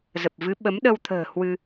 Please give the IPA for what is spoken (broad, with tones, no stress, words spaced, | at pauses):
zə˨˩p̚ vɨ˨˦ɓə˨˦mɗə˧wt̪ʰə̤ː˨˩ hwɨ˧